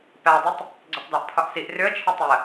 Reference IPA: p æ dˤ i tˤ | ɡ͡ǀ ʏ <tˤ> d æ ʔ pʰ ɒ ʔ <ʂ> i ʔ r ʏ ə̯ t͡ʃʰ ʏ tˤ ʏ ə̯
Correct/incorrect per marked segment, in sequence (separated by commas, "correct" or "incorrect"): correct, incorrect